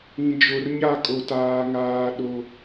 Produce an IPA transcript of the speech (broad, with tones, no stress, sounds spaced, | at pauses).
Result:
ĩ˨ d͡ʒ o˨ r ɲ a˦˨ kʼ o˨ t aː˨ ŋ aː˨ ɗ o˦